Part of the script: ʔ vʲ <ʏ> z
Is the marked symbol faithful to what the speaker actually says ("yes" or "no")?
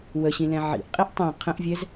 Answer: no